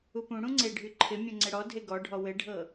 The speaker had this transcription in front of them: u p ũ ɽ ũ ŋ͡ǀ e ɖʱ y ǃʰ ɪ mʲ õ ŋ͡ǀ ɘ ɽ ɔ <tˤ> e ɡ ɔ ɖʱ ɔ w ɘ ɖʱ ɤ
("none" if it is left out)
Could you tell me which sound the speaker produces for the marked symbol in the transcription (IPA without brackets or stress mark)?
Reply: dʱ